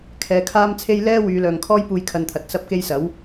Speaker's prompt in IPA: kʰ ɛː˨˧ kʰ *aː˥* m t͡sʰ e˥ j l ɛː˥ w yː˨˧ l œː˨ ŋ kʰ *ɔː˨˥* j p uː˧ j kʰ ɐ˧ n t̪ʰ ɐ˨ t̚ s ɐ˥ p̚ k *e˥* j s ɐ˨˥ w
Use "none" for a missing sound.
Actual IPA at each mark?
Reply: aː˥, ɔː˥, e˥

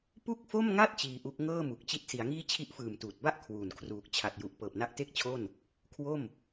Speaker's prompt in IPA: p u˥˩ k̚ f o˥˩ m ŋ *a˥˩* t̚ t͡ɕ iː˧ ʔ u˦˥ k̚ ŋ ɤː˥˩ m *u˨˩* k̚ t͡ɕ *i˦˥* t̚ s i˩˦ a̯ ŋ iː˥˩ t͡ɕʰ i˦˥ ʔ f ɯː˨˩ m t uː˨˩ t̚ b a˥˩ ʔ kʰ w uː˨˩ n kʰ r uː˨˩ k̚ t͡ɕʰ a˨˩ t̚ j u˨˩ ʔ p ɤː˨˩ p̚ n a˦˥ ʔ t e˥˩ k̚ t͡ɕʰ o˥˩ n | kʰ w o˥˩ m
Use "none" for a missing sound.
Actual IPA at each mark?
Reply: a˥˩, u˨˩, i˦˥

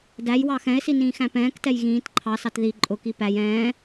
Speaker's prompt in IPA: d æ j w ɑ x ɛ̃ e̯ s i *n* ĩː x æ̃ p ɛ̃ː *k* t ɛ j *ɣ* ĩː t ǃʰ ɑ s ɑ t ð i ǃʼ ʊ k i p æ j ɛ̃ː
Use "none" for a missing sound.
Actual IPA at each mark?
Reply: n, k, ɣ

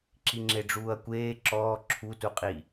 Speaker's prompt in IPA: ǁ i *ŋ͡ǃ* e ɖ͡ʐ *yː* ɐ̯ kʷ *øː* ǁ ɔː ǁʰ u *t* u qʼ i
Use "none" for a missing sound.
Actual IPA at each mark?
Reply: ŋ͡ǁ, uː, eː, t

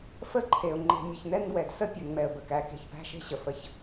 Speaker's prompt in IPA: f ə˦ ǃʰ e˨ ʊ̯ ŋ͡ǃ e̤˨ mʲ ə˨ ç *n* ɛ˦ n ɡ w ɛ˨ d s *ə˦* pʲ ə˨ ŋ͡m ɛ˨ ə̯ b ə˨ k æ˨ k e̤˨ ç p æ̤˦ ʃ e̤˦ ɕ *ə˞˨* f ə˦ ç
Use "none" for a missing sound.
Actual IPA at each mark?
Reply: n, ə˦, ə˨

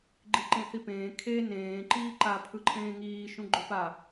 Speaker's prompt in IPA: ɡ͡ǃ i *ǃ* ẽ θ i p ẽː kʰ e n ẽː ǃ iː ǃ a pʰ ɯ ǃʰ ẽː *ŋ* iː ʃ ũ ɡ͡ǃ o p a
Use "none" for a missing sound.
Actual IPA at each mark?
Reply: ǃ, ŋ

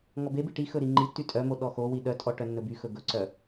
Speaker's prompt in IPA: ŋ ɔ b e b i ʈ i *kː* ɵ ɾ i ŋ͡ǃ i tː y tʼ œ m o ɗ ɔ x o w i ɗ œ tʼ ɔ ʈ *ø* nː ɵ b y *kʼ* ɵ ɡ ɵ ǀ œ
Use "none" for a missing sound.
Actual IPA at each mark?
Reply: x, œ, x

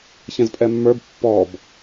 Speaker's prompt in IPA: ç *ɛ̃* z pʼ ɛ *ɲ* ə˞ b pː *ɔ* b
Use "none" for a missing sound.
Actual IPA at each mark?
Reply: ɛ̃, mː, ɔ

